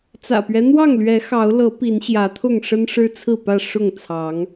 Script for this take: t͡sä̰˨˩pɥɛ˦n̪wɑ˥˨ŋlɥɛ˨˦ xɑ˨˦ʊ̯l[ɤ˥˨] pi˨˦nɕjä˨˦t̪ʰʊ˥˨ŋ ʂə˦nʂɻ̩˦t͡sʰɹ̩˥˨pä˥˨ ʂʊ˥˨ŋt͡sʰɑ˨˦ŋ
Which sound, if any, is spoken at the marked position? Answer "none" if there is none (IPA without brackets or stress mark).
ɤ˨˦